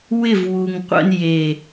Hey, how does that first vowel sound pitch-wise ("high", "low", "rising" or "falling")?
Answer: falling